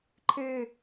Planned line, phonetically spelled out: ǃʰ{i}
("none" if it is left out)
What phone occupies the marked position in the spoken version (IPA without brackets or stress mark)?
e